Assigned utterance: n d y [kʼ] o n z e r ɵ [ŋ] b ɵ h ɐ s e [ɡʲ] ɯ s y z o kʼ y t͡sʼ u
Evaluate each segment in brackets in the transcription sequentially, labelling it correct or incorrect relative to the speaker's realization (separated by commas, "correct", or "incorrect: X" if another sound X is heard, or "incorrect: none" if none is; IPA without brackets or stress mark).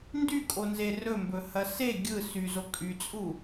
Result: correct, incorrect: m, correct